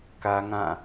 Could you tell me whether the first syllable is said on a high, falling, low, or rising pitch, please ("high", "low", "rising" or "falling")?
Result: high